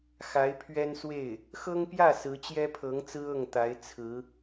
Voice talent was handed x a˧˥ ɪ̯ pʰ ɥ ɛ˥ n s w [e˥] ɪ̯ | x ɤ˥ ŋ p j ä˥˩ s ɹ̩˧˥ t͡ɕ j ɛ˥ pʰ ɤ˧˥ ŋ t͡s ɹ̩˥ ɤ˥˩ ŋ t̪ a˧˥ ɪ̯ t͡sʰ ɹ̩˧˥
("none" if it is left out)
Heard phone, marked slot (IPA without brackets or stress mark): e˥˩